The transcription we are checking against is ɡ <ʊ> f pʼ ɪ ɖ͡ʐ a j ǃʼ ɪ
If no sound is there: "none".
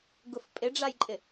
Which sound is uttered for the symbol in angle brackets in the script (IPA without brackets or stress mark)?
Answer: ʊ